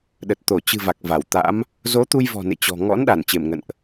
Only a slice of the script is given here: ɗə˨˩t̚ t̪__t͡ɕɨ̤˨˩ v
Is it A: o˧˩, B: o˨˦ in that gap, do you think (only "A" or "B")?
A